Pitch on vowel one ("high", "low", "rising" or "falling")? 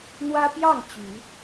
high